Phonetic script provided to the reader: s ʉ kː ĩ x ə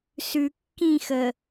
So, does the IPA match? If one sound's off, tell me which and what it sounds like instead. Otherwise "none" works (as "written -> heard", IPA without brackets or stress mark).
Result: none